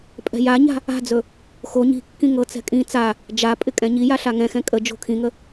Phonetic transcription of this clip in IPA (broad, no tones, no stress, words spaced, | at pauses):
pʼɛ̤jaɲa̤ | a̤d͡zɵ | xo ɲi̤kːĩ ŋɤt͡sɛ̤ kʼĩ t͡sa | d͡ʒapʼɪ kʼɛ̃ɲija ɬaŋɛ̃xɛ̃ kʼə d͡ʒo̤kʰĩŋə